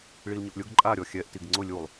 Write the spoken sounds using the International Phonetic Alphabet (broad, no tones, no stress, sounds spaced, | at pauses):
ɭ i l ɲ ʊ ʔ lʲ ʊ ɡ ǃʼ a ɾʲ ɔ xʲ ɛ ʔ t i ɡ ŋ͡ǀ ʊ lʲ u lˠ